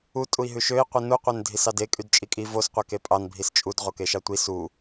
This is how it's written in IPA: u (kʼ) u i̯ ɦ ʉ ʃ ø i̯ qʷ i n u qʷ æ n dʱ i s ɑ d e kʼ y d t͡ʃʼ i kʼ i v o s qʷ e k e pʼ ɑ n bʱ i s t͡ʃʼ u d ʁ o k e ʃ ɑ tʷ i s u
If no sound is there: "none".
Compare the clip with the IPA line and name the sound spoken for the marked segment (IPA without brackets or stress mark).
tʼ